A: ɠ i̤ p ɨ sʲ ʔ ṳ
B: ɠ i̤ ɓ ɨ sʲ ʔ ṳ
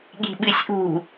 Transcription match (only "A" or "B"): B